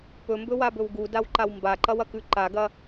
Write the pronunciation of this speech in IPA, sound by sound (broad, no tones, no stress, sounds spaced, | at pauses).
p ɵ m b ɵ w a b ɵ w ɡ u d a w ǃ a w m b a ǃ ɐ w ɐ k ʉ ǃ a ɡ ɐ